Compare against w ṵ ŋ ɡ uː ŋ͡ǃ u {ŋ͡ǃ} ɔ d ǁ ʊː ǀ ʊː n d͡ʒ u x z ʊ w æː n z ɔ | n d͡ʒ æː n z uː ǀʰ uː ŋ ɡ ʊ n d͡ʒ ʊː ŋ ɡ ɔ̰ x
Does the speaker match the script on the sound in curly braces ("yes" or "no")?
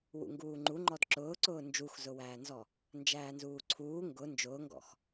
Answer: yes